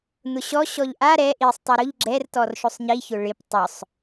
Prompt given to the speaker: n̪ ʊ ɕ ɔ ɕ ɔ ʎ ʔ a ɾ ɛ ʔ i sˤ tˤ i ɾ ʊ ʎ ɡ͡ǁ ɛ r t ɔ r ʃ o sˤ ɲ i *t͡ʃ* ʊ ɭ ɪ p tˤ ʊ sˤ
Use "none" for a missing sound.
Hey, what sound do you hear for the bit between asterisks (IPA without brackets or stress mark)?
ç